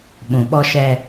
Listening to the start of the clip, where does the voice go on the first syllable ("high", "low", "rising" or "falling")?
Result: low